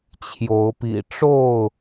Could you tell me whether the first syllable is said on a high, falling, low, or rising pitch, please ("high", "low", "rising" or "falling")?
rising